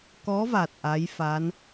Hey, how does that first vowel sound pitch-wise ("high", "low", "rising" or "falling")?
rising